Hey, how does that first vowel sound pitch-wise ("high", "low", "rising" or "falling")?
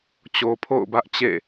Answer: low